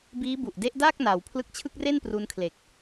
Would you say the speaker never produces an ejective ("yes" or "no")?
yes